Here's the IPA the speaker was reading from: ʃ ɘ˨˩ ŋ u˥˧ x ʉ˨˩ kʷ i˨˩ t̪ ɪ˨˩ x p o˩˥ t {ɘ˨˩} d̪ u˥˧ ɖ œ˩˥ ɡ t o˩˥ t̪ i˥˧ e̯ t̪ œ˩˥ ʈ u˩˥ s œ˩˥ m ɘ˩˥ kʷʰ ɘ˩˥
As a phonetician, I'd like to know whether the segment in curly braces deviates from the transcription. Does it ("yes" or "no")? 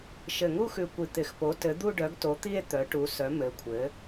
yes